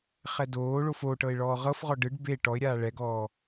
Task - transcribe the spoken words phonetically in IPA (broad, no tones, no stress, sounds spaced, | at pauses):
χ ɛ d oː ɭ o f o ʈ ɤ ɪ̯ ɭ ɔː ʁ ɤ f ʁ ɔ ɖ ɯ ɖ b e ʈ ɔ ɪ̯ ɾʲ aː ɭ ɛ ɡ ɔː